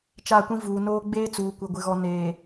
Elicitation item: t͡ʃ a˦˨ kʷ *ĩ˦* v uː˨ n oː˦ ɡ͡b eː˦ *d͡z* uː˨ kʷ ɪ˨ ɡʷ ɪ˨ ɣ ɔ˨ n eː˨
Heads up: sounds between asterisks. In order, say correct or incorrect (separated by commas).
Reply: correct, incorrect